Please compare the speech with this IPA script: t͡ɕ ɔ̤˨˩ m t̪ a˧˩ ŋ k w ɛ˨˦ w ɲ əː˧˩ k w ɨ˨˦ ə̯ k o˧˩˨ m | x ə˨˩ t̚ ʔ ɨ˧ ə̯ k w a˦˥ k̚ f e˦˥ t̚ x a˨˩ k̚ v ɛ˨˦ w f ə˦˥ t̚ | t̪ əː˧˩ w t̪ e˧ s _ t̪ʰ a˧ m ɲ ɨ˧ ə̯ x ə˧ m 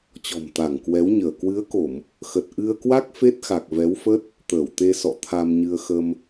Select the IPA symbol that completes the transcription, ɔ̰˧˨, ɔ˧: ɔ̰˧˨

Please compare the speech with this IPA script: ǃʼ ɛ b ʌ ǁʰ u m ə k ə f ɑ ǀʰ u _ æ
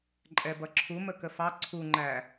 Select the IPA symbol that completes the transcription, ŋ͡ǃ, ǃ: ŋ͡ǃ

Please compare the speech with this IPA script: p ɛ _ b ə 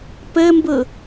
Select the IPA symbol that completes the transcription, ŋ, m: m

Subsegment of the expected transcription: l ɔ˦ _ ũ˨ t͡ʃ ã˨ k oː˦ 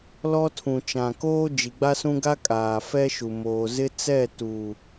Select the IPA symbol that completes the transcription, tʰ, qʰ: tʰ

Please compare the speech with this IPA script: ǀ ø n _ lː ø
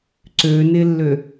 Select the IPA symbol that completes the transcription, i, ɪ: ɪ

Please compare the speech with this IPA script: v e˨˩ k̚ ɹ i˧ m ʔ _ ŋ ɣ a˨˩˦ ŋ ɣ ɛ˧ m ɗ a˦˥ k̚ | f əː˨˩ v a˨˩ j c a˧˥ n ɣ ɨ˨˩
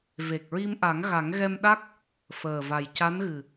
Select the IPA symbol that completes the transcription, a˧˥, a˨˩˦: a˨˩˦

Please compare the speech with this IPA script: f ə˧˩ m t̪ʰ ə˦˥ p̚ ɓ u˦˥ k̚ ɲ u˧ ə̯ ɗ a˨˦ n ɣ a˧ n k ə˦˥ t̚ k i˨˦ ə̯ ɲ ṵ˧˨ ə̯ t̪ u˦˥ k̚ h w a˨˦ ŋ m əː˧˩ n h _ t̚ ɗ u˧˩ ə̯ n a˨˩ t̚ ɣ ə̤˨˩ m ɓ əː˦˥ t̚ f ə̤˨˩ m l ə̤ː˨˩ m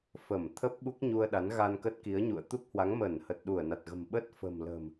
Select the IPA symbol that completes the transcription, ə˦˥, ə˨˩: ə˨˩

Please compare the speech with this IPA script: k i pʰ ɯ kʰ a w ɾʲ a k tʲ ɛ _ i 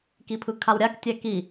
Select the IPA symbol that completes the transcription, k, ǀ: k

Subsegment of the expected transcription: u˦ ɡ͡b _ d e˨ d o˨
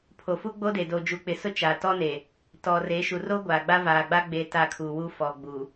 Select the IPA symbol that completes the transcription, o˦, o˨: o˦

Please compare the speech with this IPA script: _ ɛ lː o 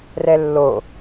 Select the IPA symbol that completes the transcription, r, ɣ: r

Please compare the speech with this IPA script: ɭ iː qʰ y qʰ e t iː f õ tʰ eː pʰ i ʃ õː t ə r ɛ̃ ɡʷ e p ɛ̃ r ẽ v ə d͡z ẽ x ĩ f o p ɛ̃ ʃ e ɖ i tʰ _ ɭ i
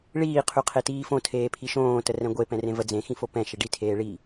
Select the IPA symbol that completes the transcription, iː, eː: eː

